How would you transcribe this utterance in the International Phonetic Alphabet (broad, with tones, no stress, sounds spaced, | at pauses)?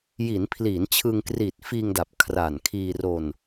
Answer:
j i˩˦ n pʰ l i˩˦ n t͡ɕʰ ɯ˧ ŋ k r iː˨˩ t̚ f iː˧ ŋ d a˨˩ p̚ kʰ r a˨˩ n kʰ iː˧ r o˧ n